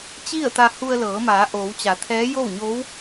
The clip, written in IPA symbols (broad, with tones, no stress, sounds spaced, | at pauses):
t͡ɕ i˥˨ ə̯ t̪ a˧ h u˧ ə̯ l ɤː˩˧ m aː˩˧ ʔ oː˩˧ w t͡ɕ a˩˧ t̪ʰ ɛː˧˥ j o˥˨ w ɲ o˧˥ w